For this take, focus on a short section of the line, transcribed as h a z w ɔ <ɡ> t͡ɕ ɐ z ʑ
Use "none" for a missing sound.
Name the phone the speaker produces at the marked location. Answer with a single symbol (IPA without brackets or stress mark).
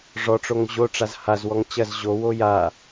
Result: ŋ